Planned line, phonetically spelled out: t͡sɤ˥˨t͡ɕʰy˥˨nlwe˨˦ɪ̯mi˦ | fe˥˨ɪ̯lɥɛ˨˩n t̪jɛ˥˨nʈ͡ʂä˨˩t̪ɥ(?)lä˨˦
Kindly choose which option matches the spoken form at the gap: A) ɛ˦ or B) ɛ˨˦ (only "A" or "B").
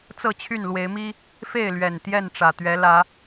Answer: B